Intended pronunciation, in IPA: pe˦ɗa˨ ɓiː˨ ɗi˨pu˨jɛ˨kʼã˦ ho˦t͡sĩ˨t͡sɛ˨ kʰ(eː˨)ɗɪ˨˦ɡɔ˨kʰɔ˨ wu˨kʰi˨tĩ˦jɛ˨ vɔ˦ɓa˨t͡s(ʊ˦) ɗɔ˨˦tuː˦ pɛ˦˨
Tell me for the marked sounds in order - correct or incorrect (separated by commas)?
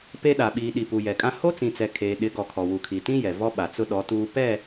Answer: correct, correct